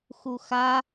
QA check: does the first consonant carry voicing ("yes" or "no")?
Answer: no